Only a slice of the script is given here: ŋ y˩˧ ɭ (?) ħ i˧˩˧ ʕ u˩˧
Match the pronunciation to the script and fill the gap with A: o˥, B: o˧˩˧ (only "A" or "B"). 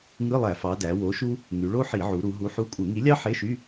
A